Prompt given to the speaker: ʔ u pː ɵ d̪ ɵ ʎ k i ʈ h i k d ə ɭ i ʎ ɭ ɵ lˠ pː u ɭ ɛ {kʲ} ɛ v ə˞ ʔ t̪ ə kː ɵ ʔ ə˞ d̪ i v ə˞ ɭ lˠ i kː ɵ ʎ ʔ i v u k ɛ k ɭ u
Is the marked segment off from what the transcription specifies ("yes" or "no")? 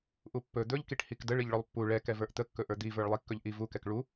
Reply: yes